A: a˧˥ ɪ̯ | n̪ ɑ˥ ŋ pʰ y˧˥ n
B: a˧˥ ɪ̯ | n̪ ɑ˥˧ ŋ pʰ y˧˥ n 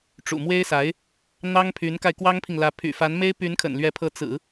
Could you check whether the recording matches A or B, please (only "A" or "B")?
A